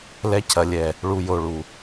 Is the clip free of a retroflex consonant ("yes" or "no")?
no